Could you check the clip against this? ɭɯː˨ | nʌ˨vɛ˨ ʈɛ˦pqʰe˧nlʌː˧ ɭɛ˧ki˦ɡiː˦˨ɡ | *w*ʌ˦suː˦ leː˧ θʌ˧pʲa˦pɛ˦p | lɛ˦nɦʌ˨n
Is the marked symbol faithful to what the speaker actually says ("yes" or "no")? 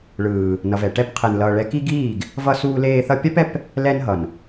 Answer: no